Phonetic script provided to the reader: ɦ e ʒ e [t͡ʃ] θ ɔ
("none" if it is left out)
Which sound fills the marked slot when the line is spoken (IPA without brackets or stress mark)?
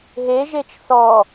t͡ʃ